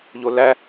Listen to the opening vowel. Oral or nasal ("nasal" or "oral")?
oral